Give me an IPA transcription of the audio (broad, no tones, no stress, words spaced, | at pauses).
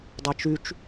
dˤɛt͡ʃyt͡ʃ